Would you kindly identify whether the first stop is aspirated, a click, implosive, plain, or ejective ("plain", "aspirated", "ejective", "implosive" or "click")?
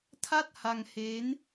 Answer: aspirated